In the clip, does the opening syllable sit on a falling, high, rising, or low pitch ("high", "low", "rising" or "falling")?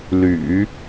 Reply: low